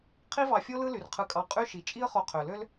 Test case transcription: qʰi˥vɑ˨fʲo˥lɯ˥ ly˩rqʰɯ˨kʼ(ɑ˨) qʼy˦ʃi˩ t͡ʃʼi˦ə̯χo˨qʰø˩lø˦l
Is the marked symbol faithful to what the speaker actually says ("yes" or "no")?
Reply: yes